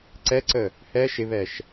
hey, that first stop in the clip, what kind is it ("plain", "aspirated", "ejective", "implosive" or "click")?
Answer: click